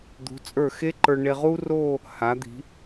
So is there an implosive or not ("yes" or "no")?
no